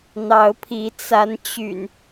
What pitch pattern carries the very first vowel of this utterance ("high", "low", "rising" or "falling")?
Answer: rising